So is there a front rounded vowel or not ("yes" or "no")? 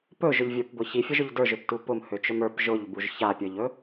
yes